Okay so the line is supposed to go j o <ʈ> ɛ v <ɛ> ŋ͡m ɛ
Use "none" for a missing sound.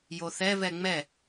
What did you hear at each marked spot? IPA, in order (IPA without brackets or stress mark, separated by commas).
θ, ɛ